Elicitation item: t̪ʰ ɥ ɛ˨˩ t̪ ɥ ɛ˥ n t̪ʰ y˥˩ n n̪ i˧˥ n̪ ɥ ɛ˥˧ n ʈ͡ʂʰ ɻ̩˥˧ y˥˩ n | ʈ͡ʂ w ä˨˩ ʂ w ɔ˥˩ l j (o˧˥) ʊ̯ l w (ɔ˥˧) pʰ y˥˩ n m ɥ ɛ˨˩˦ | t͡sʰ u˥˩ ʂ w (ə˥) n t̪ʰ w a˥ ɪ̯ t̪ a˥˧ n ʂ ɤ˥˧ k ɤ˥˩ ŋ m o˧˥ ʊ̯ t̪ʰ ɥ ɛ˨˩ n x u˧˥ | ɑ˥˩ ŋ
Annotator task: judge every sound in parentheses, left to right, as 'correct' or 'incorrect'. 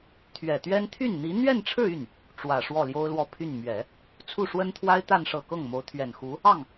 incorrect: o˥, correct, correct

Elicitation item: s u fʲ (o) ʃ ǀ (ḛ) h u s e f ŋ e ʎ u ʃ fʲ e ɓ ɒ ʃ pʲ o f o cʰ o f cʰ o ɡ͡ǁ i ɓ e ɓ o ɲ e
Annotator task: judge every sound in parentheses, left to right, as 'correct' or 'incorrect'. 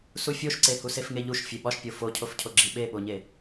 correct, incorrect: e

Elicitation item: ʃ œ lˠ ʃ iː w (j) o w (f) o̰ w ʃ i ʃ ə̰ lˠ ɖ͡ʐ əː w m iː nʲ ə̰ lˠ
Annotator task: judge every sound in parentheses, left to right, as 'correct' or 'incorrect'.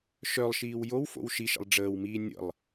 correct, correct

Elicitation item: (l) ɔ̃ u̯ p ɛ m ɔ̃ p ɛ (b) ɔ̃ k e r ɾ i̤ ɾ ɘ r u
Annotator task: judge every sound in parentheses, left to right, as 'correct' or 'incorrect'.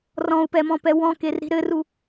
incorrect: r, incorrect: w

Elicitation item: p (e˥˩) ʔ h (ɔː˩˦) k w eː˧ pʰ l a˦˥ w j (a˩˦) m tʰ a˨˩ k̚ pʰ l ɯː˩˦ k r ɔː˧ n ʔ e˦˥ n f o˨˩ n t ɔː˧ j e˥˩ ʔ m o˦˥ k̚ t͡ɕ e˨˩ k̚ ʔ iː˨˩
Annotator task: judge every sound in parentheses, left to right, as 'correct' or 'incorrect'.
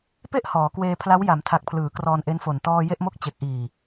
correct, correct, correct

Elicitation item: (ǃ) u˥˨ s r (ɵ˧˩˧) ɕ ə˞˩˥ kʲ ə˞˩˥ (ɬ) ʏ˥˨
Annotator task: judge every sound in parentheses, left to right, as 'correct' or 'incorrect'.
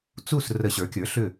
incorrect: t͡s, incorrect: ə˧˩˧, correct

